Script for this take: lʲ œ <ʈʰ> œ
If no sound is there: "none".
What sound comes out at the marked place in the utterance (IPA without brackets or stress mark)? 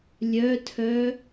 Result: tʰ